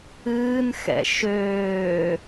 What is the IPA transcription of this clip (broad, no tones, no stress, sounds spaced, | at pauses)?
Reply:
ɨː n x ɛ̰ ʃ øː